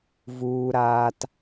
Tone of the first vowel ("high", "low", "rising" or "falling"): low